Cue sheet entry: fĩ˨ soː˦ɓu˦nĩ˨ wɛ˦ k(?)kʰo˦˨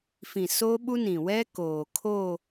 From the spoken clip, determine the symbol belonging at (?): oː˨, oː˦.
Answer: oː˨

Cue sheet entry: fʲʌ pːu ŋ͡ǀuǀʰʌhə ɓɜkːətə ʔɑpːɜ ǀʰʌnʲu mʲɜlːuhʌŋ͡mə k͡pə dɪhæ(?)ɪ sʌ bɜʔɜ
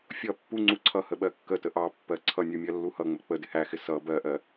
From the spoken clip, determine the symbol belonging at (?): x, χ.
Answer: x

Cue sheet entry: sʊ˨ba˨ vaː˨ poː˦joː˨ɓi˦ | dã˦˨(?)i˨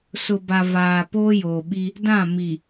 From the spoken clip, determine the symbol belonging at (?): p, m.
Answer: m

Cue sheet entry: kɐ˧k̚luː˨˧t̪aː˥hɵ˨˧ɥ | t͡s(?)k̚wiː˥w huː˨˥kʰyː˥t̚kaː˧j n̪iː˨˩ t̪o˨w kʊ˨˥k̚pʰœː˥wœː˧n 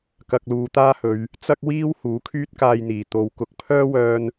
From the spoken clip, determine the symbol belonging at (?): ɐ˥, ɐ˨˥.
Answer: ɐ˥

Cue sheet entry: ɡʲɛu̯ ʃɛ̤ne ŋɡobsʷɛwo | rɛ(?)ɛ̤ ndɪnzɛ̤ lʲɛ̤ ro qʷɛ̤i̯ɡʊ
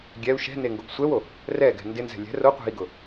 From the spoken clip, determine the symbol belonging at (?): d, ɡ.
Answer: ɡ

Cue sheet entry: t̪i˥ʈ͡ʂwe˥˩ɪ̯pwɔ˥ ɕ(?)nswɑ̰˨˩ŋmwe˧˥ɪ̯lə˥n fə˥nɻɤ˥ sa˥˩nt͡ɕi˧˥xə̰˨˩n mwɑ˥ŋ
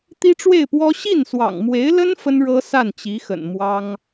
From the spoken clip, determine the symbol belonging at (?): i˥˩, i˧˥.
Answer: i˥˩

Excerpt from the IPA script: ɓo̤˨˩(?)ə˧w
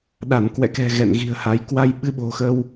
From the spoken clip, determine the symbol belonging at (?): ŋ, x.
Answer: x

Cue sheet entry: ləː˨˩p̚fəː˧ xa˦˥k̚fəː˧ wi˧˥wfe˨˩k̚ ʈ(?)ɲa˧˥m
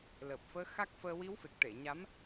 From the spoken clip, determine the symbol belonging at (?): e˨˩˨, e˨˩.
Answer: e˨˩˨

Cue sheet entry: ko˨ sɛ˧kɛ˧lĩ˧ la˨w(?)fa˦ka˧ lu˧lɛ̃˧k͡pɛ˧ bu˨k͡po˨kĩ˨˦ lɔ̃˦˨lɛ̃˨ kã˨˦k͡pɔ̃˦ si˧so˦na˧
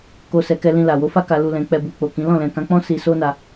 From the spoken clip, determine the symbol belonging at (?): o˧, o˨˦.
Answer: o˨˦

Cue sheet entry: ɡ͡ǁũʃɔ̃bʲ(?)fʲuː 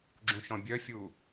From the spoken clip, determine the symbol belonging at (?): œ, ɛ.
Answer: œ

